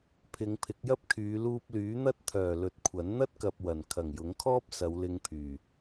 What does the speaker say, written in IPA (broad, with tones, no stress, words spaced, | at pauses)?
pʰɪ˨˧ŋpʰɪ˨˥k̚jɐ˥p̚kʰyː˨˧ luː˧p̚lyː˨˥n̪ɐ˥t̚t̪ʰœː˨˩ lɵ˨t̚kʷʰɐ˨˥n n̪ɐ˥t̚kɐ˨p̚ wɐ˨˩n kʰɐ˨˩ŋjʊ˨˥ŋkʰɔː˥p̚ sɐ˨˧wlɪ˧ŋpʰyː˨˩